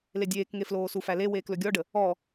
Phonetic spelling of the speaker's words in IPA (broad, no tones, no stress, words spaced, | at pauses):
ledʲeːkŋe floːsufæle weːklɵɡʲɔɖə | ɔ